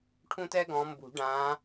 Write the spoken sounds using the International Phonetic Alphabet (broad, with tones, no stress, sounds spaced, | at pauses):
ʈʰ ũ˦ t ɛ˦ ɡ ɔ̃˨˦ m b ṳ˨˩˦ ɖ ã˨˦